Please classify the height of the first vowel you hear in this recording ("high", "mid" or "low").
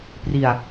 high